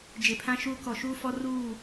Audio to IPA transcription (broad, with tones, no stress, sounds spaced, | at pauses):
d͡ʒ e˨ pʰ ã˦ ʃ uː˦ k ɔ˨ ʃ uː˦ f ɔ˦ r uː˦˨